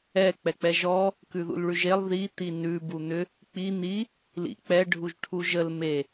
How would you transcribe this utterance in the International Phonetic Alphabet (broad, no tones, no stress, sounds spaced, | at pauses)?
ɛ k͡p ɛ k͡p ɛ ʒ ɔ | k ʉ ð ṵ l ɭ ʉ ʒ e lˠ ð i t̪ i n ʉ b u n̪ ʏ | k͡p i n̪ i | l ḭ k͡p ɛ ɖʱ u ʒ ʈʰ u ʒ ə l m e